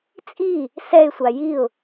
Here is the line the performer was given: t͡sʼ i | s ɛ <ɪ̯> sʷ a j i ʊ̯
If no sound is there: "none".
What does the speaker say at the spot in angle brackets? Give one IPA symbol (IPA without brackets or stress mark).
ɪ̯